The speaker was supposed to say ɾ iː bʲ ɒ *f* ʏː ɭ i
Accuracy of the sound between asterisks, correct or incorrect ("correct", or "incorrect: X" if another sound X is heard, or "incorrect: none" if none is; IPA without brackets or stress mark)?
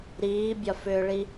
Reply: correct